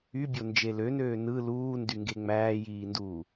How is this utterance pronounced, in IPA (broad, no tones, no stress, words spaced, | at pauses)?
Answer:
ybʲond͡ʒe lønøː nɯ luːndyŋɡe ŋ͡mæːjiːnduː